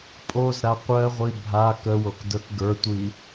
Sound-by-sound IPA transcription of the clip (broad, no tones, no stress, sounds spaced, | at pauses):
pʼ o z ɾ a qʷ ɜ ʁʷ i bʱ a k ə w o k d ə˞ k ɡ ə˞ tʷ i